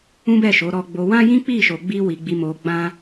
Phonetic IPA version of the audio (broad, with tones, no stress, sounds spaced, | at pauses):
ũ˦ b ɛ˦˨ ʃ o˨˦ ɾ ɔ˧ ɡ͡b o˧ w ã˦ j ĩ˦ k͡p i˦˨ ʃ o˧ ɡ͡b i˦ w i˧ ɡ͡b i˧ m o˧ ɡ͡b ã˦